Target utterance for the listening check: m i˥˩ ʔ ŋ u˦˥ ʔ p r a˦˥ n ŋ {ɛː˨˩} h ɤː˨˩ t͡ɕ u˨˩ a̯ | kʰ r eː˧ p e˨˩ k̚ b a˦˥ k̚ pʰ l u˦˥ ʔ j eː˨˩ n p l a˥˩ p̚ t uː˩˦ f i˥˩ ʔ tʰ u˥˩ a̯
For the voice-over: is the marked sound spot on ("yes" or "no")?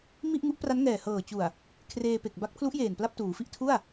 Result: yes